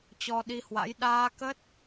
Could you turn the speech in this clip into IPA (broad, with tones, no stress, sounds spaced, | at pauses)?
t͡ɕ ɔ˧ ɗ i˧ h w a̰˧˥ j ɗ aː˧ k ə˦˥ t̚